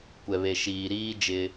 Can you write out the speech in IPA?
kʷ ɛ˨ β e˨ ʃ iː˨ ɾ iː˦ d͡ʒ ɪ˦

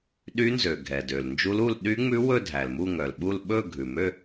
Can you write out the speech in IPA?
ɗ y˦˥ n z ø˩ ɡʱ ɛ˩ d ø˩ l n d͡ʒ u˦˥ l u˥˧ l ɗ y˦˥ ŋ͡m ʉ˦˥ w ɵ˥˧ dʱ æ˩ l m u˥˧ ŋ œ˩ l ɓ u˥˧ l ɓ ɵ˥˧ ɡʱ ʉ˩ m ø˥˧

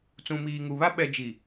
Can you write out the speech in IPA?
t͡s ũ˨ m iː˨ ŋ u˨ β a˦ ɓ ɛ˨ d͡ʒ i˨

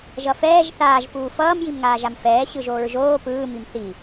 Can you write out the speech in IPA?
ʒ ʌ f ɛː ʒ θ aː ʒ p uː f ʌː m j i m ŋ aː ʒ a m f ɛː ɕ ɯ ʒ oː ɹ ʒ oː p ɯː m i m θ i

